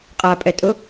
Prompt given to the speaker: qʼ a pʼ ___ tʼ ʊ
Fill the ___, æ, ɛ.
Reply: ɛ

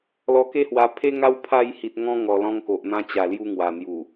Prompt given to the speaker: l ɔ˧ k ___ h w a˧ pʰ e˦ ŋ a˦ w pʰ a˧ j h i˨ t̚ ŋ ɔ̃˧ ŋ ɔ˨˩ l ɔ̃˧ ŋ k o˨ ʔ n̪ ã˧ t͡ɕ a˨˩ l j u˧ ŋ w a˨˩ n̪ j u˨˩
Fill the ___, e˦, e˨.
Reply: e˦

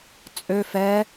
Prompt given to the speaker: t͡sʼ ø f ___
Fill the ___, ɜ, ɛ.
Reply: ɛ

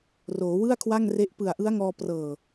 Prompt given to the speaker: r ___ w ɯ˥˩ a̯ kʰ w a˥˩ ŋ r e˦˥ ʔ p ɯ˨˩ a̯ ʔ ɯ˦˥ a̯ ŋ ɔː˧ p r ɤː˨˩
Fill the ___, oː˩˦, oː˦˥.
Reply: oː˩˦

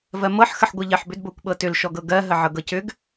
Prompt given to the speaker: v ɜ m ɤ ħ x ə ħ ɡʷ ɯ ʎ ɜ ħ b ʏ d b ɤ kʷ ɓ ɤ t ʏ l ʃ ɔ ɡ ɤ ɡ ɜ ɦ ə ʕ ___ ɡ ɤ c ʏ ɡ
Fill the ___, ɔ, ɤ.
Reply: ɤ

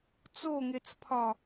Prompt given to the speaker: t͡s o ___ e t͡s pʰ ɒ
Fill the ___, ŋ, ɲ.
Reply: ŋ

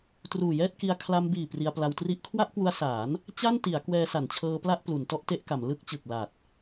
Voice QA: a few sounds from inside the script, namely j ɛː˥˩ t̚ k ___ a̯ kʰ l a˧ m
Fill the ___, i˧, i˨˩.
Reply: i˧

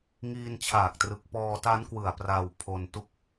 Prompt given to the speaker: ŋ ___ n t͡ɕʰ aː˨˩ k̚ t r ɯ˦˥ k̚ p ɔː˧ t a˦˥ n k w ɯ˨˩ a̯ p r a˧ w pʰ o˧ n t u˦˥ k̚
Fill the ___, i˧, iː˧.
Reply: iː˧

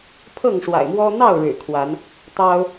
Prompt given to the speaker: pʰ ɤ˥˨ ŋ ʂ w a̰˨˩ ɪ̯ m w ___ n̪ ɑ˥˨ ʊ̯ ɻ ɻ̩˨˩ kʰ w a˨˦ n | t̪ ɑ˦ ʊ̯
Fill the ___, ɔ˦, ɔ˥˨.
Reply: ɔ˦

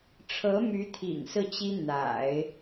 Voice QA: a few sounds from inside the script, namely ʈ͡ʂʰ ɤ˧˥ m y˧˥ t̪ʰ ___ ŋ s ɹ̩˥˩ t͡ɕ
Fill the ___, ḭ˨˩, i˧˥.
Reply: ḭ˨˩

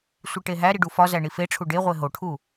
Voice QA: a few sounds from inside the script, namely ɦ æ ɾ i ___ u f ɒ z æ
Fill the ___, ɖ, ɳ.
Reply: ɖ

